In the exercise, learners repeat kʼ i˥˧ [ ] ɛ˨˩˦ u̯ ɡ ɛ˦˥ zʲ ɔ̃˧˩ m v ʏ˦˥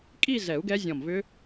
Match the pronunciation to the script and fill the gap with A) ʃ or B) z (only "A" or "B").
B